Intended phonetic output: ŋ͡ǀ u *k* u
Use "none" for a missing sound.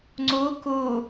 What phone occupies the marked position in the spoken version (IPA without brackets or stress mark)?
k